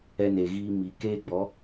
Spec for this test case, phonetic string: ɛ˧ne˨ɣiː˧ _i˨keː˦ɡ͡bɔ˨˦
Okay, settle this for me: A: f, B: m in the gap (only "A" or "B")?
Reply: B